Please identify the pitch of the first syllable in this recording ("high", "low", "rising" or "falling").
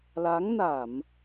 rising